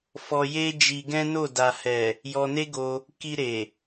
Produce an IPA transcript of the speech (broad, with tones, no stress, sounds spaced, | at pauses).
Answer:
f ɔ˧ j e˦ d͡ʒ i˧ ɡ ɛ̃˦ n o˦˨ d a˨ h ɛ˨ | j ɔ˧ n e˦ ɡ o˧ | k i˧ ɾ e˨